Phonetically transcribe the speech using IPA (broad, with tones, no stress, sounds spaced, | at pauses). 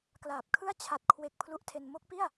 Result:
k l aː˨˩ p̚ kʰ ɯ˥˩ a̯ t͡ɕʰ a˨˩ t̚ kʰ w e˨˩ k̚ pʰ l u˦˥ ʔ tʰ e˧ n m o˦˥ k̚ p i˥˩ a̯